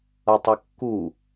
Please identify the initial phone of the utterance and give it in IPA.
ʌ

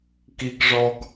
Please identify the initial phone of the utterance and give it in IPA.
k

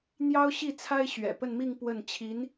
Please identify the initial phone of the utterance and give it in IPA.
n̪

